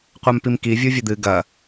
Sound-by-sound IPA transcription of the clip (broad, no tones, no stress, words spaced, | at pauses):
qʷampimki vʲuvʲɘd̪ɨ ɡɐ